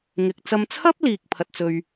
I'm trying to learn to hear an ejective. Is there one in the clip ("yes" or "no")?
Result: no